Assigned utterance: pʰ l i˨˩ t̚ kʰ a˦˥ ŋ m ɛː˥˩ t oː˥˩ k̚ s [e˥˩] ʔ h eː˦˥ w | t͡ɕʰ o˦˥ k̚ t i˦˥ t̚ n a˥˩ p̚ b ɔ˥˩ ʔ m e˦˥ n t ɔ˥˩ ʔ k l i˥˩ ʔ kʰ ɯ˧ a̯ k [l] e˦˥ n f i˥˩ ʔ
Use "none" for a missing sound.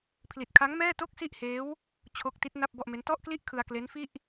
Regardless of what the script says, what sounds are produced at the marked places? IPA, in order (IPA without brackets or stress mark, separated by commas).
i˥˩, l